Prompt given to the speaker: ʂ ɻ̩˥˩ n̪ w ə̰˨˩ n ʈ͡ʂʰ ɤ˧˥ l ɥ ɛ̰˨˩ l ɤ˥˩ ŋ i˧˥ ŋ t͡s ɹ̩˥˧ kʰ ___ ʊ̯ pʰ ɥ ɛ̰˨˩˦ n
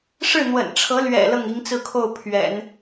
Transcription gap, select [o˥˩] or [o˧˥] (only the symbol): o˥˩